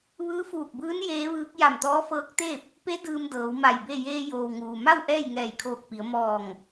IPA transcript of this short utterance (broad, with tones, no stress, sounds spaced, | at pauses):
ʋ ɯː˧˥ f uː˧˩ k̚ b ɯː˧˥ n j eː˧˥ ʋ ɯː˧˥ k̚ j a˧˩ m t̪ ɔː˧˥ f ɤː˧˥ k̚ t̪ eː˥˨ p̚ | p e˧˥ d ɯː˧ m d ɤː˩˧ w m a˧˩ j b e˥˨ j eː˧ j oː˩ w ŋ uː˩ m a˥˨ w ʔ ɛː˥˨ j ŋ ɛː˧˩ j kʰ oː˧˩ k̚ p i˩˧ ə̯ m ɔː˧˩ ŋ